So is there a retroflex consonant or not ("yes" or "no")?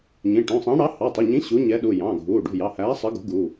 yes